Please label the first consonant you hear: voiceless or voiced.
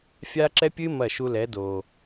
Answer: voiceless